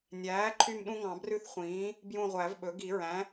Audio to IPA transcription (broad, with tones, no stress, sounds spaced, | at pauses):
nʲ æː˩˥ ǃʰ y˦˨ m ɗ ũ˦ ŋ ɑ̃˨˩˦ b r ʉ˦ θ χʷ ĩː˩˥ | b j ũ˦˨ ʁʷ æ˨˩˦ v ɓ ɵ˩˥ ɡ i˨˩˦ ɹ æ̃˩˥